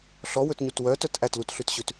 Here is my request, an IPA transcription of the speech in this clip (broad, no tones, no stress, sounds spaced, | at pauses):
ɬ ɔ w ɵ t ɲ u t w œ t œ t ʔ æ t l u t ɬ ʉ t ɕ ʉ t